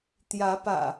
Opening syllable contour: rising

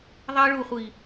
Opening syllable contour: high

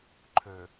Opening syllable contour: low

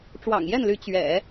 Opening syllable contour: low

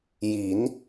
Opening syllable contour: rising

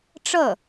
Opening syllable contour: falling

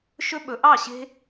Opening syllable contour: high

